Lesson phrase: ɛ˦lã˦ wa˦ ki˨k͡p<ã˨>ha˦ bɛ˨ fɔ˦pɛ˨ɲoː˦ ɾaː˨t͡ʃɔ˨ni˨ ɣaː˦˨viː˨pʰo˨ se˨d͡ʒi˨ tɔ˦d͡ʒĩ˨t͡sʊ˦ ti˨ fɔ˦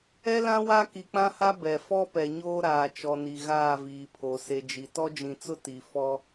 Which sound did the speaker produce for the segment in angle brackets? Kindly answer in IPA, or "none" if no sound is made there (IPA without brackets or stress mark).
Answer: ã˦